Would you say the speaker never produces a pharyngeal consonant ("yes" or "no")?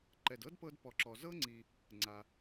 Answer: yes